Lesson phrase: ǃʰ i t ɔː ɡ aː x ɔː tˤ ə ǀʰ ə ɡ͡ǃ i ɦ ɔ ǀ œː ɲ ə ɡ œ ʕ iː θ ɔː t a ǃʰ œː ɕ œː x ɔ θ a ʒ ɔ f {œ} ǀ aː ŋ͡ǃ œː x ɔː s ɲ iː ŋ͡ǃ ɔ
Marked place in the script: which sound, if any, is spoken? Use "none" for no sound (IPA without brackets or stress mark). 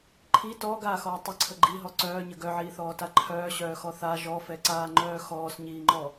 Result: ɛ